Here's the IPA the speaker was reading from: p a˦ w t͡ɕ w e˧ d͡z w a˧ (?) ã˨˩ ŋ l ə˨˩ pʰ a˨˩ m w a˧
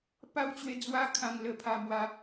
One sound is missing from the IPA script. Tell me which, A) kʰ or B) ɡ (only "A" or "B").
A